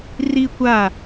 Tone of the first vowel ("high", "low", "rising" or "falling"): high